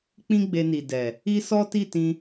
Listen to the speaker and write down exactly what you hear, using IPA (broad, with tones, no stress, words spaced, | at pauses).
k͡pĩ˦ɡ͡be˧ni˨ dɛ˨ | i˦sɔ˦ ti˦˨tĩ˧